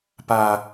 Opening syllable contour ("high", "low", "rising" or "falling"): low